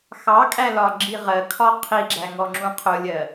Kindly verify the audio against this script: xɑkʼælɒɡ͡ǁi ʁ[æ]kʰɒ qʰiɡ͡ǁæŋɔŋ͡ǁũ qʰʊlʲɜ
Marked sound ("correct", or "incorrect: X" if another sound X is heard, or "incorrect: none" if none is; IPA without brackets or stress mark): incorrect: ɜ